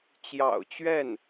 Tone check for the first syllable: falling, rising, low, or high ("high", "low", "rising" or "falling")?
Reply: low